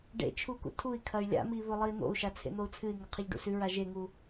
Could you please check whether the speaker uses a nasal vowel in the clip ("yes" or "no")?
no